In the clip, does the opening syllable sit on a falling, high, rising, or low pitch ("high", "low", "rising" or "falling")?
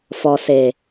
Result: low